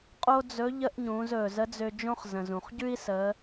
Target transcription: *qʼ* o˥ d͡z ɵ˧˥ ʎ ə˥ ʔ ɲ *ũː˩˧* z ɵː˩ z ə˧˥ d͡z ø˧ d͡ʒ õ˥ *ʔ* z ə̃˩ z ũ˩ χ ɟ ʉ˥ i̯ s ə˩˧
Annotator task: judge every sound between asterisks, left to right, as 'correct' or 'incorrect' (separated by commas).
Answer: correct, correct, incorrect